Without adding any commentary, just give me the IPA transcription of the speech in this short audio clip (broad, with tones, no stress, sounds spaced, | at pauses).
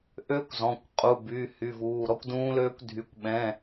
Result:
ʔ ø˦˥ kʷ z ɔ̃˩˧˩ kʷ qʼ u˩˧˩ b y˩˧˩ h y˩˧˩ v uː˩˧˩ ɾ ɔ˦˥ kʷ d ũː˦˥ l øː˦˥ kʷ dʱ y˩˧˩ kʷ ɓ ɛ̃˩˧˩